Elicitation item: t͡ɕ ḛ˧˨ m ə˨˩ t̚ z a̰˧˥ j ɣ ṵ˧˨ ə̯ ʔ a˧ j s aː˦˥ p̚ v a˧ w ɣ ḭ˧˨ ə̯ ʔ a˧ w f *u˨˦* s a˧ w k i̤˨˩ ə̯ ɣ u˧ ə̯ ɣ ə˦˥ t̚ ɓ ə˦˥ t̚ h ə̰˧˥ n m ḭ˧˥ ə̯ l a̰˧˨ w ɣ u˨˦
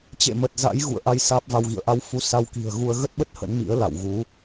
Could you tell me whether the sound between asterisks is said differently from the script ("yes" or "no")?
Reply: no